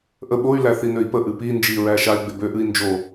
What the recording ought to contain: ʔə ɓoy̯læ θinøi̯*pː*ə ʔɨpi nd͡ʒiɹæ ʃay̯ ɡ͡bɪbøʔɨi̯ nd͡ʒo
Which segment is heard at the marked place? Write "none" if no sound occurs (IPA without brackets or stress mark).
p